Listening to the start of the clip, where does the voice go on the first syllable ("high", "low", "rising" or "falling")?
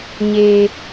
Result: high